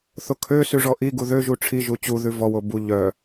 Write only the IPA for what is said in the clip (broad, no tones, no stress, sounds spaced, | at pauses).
θ o kʰ ø s ʉ ʐ ɔ ʔ i ɡ u ð ø ʒ u ʈ͡ʂʰ i ʒ u t͡ɕ u ð ʉ v ɔ w o b u ʎ œ